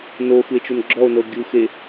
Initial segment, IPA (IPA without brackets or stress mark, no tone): n